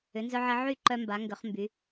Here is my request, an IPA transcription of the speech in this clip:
ʏ˩˧ n z œ˧ ʕ ɪ˧ ʕ y˥˧ ǃ œ˧ m b a˩˧ ŋ ɡ ʏ˩˧ χ m b y˩˧

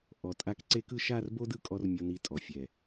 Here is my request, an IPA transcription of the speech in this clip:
ʔ ɔ˨ tʼ a˧ k ǀ e˦ k ɯ˦ ʃ a˦˨ r b o˦ d ɯ˦˨ kʼ ɔ˧ r mʲ o˧ n i˧ tʼ ɔ˨ fʲ ɛ˨

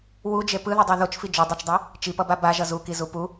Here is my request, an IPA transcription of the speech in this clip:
w u d͡ʒ e p ɯ ð ʌ dˤ ɛ ð o t͡ʃ f i d͡ʒ o dˤ ɛ t͡ʃ dˤ e | t͡ʃ i p ʌ b a b a ʒ ʌ z u k i z u p u

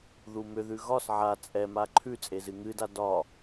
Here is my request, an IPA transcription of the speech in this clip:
ð u m ʏ ð ʉ ɣ ɒ s ʕ a t͡sʼ ɛ m a ǃʰ ʉ t͡sʼ e z ɨ ŋ ɨ d a d ɒ

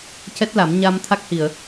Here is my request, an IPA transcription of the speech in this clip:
c ɛ˦˥ t̚ l a˨˩˦ m ɲ a˧ m t̪ʰ a˦˥ k̚ h i˨˩˨ ə̯

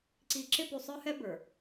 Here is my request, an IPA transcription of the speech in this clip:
ǀ i˨ ǁ ɪ˦ p u˨ sˤ ə˞˦ h ɛ˦ b ə˞˨

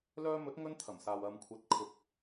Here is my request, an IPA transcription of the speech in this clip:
l œː˧ m ɵ˨˥ t̚ ŋ ɵ˧ n t̪ʰ ɐ˨˩ m s aː˨ w ɐ˨ m kʷʰ ɐ˨˥ t̚ kʰ ʊ˨ k̚

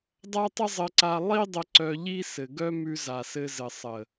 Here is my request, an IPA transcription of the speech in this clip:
dˤ a˦ tˤ ə˦ zˤ ɘ˧ ǀ a˧ lˠ i˦ dˤ ə˧ ǀ œ˧ ʎ i˦ s ɘ˨ ɡ œ˦ m ʉ˧ z a˨ s ɘ˧ z ɘ˨ sˤ ə˨

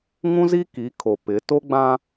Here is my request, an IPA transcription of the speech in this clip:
ŋ ũ˦ z i˦ k i˨˦ kʰ o˨ p ɪ˨˦ t o˦ ɡ͡b ã˦

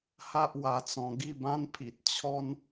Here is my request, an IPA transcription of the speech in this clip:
h a˦ ʔ w a˧ t͡s ɔ̃˧ ɡ i˥˧ b ã˦ n pʰ i˨ t̚ t͡ɕʰ ɔ˧ n

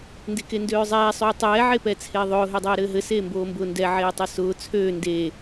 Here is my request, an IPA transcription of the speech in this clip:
n d e k e n d øː zˤ ɛː sˤ øː tˤ ɛː ʕ e p ɛ t͡sʰ eː ðˤ ʊː ɦ ø dˤ ɛː ɾ ɘː ɦ ɘ s eː m b oː m b ʊː n d ɛ ʕ eː tˤ ø s ʊː t͡sʰ øː n d e

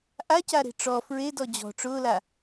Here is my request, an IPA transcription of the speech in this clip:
ʔ a c a ɾ e̤ ʈ͡ʂ ɔ f ɹ e d ɔ d͡ʑ ɔ̤ ʈ͡ʂ ʊː l a

